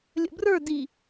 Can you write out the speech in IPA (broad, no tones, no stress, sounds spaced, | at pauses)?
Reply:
lʲ ə̰ b r ə˞ d i